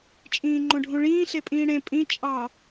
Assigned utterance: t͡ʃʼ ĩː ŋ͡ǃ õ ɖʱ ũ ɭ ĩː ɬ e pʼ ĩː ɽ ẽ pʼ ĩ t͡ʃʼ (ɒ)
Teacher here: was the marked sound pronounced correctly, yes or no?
no